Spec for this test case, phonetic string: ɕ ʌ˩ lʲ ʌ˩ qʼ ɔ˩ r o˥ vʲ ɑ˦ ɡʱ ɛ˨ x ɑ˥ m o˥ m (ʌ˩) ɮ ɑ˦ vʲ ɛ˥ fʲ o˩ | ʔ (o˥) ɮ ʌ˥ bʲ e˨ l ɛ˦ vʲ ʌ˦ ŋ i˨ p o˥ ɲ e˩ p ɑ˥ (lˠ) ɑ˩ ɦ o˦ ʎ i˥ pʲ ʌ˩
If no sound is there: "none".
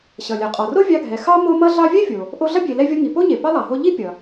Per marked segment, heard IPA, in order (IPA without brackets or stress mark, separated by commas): ʌ˥, o˦, lˠ